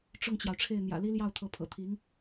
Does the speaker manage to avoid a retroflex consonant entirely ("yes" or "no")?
no